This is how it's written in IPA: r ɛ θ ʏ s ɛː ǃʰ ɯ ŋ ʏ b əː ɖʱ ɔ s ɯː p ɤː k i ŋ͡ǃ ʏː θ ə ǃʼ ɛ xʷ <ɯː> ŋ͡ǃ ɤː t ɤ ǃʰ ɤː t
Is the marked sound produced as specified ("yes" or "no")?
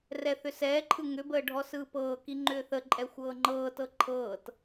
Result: no